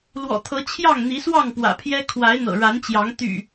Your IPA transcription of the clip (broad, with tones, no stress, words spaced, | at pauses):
lwɔ̰˨˩t̪ʰɤ˨˦ t͡ɕʰjɑ˥˨ŋn̪i˨˦swɑ˥˨ŋ pwä̰˨˩pʰjɛ˦ kʰwa˨˦ɪ̯n̪ɤ̰˨˩ɻa˨˦nt͡ɕjɑ˨˦ŋ t̪y̰˨˩